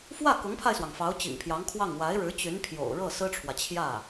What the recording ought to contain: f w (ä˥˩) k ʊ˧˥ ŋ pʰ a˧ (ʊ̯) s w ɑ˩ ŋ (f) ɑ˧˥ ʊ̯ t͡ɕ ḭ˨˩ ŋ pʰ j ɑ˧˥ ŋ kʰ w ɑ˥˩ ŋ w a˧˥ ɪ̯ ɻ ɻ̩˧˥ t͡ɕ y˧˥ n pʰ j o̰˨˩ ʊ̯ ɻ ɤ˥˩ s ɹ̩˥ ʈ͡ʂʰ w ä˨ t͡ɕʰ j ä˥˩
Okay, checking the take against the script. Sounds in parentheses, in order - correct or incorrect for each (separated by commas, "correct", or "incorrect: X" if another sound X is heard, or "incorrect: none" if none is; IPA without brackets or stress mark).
correct, incorrect: ɪ̯, correct